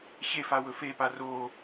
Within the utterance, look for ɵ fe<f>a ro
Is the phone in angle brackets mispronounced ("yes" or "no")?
yes